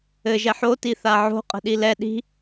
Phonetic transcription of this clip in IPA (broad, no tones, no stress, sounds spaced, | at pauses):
ɘ ʒ ɛ ħ o t i θ a ʕ o̤ qʼ ə̤ ɗ i l ɛ ɗ i̤